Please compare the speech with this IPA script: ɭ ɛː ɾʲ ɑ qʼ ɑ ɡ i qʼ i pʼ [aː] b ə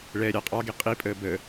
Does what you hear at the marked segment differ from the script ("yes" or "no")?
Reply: yes